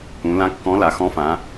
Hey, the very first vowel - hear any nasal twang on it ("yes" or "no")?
yes